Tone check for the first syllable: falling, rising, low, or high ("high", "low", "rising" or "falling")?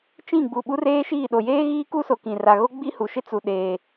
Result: falling